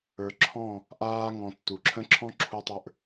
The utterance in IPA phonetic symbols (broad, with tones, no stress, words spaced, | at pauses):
ə˞˨ǁʰɔ̃˦˨ | ʔaː˦ŋɔ̃˧ tːu˨ǁʰə̃˦ ǁʰɔ̃˦ǁʰu˧tˤə˞˧ʔ